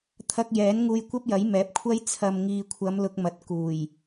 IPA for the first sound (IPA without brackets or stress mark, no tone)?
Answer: t̪ʰ